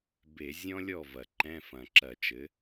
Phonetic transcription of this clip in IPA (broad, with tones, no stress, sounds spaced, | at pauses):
b e˧˩˧ zʲ ɔ̃˥ lʲ ɔ˥˩ v ɐ˨˩ ǃ ɛ̃˧˥˧ f ɐ̃˨˩ ǁ ɐ˧˩˧ t͡ʃ ɘ˩˥